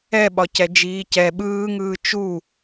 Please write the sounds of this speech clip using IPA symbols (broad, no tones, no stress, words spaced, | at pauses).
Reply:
ɛɓɒcɛ d͡ʒiːcɛ ɓɯːŋɯː t͡ʃu